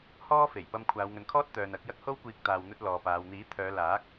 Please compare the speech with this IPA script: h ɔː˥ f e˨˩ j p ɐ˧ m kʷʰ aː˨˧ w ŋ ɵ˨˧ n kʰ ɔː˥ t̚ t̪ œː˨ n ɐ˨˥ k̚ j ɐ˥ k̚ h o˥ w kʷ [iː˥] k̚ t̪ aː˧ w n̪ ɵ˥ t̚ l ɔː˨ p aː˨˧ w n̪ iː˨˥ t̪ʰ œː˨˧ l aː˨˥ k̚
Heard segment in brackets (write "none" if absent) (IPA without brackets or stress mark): iː˧